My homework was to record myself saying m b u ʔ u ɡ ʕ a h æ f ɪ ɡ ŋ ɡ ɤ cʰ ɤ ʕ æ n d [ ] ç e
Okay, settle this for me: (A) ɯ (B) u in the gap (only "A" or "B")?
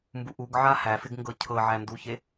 B